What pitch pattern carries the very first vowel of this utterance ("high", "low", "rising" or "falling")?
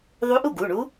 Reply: rising